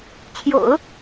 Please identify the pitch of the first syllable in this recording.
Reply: low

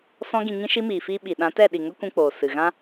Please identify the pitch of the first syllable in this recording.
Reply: high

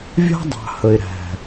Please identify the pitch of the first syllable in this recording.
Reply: high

